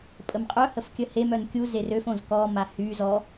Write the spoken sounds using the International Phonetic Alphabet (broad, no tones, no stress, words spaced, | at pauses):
pʼəmqʼœhəf kʲəhemœn kʲuzer øfõz kɔma hy zɔ